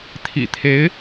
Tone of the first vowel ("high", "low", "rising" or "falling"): low